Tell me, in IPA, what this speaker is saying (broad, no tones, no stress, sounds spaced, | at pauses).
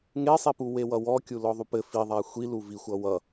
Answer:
ŋ e sˤ i p u w e w ʌ w ɔ kʲ u l ɔ ðˤ u p ɘ f i ðˤ a xʷ i l u v i xʷ ʌ w ʌ